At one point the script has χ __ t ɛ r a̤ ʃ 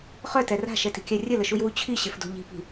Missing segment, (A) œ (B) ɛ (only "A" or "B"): A